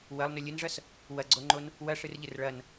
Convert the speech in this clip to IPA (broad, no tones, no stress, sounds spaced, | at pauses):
w ɐ lˠ n ɵ lʲ ɨ n ʐ ɐ s | w ɐ ɡ͡ǀ o ŋ͡ǃ o n | w ɐ ʂ ɨ r ʎ ɨ r ɭ ɐ n